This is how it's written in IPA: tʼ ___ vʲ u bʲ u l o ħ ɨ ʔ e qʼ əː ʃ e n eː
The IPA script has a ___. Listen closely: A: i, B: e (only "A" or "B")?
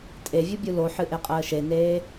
B